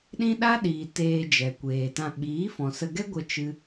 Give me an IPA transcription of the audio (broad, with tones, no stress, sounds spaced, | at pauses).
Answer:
ɗ ĩ˦ ɗ a˦ ɗ iː˨ t eː˧ d͡ʒ ɛ˨ kʷ eː˨ t ã˧ ɓ iː˨˦ f ɔ̃˨ s ə˧ ɡ ɛ˦ ɡʷ ə˧ t͡ʃ ɨ˧